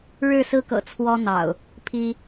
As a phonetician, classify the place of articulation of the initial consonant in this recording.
retroflex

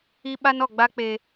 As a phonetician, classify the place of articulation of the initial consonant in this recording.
labial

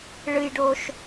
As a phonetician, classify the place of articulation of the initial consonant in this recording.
retroflex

